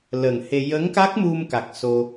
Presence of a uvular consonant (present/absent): absent